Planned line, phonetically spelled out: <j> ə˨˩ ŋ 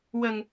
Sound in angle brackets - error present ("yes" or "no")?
yes